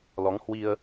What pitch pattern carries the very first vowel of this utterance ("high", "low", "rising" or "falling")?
rising